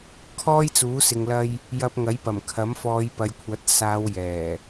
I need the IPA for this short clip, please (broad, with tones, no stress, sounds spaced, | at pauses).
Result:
kʰ ɔː˥ j t͡s uː˨˥ s ɪ˧ ŋ l ɐ˥ j | j ɐ˧ p̚ ŋ ɐ˨˥ j p ɐ˨˩ m kʰ ɐ˨˥ m f ɔː˨˧ j p ɐ˨ j kʷʰ ɐ˨˥ t̚ s aː˨˧ w j ɛː˨˩